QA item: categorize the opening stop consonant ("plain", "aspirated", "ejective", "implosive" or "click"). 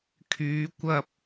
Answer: aspirated